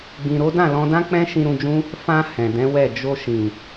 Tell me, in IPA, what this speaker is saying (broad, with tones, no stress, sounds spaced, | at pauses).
ɡ͡b ĩ˨ ɾ o˨˦ d ã˦˨ l ɔ̃˧ d ã˦ k͡p ɛ̃˦ ʃ ĩ˧ ɾ ũ˧ d͡ʒ ũ˦ | f ã˧ h ɛ̃˨ d ɛ̃˨˦ w ɛ˦˨ d͡ʒ o˧ ʃ ĩ˨